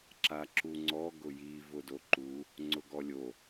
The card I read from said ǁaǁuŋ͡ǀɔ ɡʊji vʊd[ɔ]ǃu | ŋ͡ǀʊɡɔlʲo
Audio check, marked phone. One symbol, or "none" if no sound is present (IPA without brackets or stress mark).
o